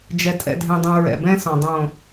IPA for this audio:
d͡ʒ ɛ˨ tʼ ɛ̰˨ dʱ ɛ̃˨ dˤ õ˨ ɹ ɛ̰˨ b ɛ̃˦ s ɔ̃˨ dˤ õ˨

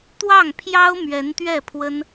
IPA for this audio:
t̪ w ɑ˥˩ ŋ pʰ j ɑ˥ ʊ̯ m ɥ ɛ˧˥ n t̪ ɥ ɛ˥˩ pʰ w ə˥ n

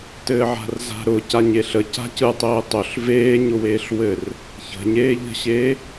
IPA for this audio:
t ɘː ʕ a̤ r z a̤ ɾ ʊ c a ɲ e ɬ ə c a̤ c ɯ tˤ eː tˤ ʊ ɬ v eː ɲ ʊ w eː ɬ w ɘ r | ç ə̤ ɲ eː ʎ ə̤ ɕ eː

